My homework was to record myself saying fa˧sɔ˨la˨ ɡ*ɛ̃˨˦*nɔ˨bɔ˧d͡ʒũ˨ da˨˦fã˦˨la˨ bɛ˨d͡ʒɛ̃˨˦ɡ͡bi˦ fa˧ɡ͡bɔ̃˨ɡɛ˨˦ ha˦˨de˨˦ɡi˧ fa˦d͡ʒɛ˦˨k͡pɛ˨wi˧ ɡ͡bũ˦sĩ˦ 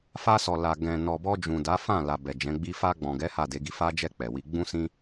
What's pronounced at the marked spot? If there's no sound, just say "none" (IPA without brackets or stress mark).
ɛ̃˨